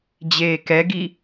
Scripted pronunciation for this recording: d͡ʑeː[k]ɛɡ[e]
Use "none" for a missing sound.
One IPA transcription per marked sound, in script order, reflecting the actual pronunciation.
k, i

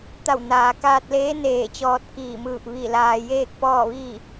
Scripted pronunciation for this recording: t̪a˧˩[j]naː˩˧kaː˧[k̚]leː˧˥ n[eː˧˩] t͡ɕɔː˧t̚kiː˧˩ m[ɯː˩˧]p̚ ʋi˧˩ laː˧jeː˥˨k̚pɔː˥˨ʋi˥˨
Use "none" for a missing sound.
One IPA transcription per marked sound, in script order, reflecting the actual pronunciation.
w, t̚, eː˧˩, ɯː˧˩

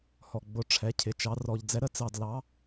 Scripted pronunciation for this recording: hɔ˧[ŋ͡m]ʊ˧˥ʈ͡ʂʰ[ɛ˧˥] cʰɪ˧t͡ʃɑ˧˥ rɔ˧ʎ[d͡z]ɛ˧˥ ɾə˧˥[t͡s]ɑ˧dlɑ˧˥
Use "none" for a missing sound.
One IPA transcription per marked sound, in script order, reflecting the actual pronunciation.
ɡ͡b, ɛ˧˥, d͡z, t͡s

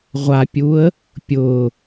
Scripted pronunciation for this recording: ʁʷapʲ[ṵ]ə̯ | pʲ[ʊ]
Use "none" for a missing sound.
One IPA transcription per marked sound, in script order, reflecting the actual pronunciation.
u, ʊ

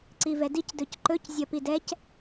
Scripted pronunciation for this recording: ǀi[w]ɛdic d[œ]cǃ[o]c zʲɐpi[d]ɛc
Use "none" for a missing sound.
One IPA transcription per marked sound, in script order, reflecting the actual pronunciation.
v, ɵ, ɵ, d

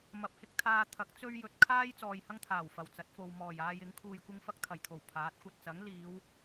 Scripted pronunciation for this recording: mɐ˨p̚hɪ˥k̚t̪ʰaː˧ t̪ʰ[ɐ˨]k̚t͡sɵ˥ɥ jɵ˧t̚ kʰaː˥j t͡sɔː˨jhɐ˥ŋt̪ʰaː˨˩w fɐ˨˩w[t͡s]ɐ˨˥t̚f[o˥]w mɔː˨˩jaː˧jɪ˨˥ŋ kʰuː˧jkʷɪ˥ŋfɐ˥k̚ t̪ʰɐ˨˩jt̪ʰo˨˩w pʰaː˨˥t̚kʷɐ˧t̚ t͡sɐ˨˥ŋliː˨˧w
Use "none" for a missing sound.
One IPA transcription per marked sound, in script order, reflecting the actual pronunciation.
ɐ˨˥, t͡s, o˨

